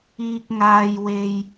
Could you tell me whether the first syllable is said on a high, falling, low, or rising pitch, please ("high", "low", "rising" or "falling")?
high